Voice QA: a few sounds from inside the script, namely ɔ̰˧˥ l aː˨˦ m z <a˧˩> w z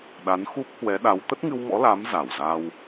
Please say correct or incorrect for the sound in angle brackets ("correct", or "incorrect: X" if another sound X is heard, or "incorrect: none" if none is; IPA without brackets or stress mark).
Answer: correct